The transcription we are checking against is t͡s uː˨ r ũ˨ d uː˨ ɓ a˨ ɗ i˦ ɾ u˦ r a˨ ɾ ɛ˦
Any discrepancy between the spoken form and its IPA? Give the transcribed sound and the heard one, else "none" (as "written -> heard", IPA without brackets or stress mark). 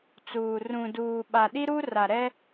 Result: none